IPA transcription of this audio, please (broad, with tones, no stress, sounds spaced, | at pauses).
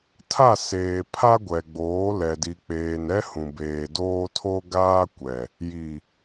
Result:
tʰ a˦˨ s eː˨ pʰ a˦ ɡʷ ɛ˨ ɡ͡b oː˨˦ l ɛ˨ d i˨ k͡p eː˨ n ɛ˦ h ũ˨ b eː˨ d oː˦ tʰ o˦ ɡ aː˦ kʷ ɛ˨ | j i˨